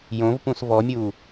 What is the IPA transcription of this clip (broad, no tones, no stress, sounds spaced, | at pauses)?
j õ v p ũ s v ɔ mʲ u